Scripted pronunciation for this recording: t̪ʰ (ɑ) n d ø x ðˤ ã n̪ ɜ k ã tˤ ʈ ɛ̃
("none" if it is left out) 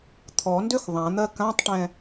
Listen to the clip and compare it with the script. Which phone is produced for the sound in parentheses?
ɔ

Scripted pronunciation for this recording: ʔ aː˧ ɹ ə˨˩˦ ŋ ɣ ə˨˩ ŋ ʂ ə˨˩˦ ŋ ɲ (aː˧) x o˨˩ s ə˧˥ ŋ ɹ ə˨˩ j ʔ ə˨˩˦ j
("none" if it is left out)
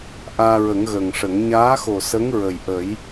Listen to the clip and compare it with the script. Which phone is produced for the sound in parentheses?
aː˧˥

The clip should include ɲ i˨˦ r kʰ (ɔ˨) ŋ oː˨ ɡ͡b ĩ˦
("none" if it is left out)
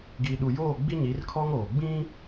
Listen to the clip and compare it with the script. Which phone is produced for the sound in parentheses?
ɔ˦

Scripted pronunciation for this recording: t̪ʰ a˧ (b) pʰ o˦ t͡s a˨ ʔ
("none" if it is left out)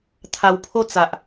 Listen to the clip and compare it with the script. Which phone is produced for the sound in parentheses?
w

